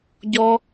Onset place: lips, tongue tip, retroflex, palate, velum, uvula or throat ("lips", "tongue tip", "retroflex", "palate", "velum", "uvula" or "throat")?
palate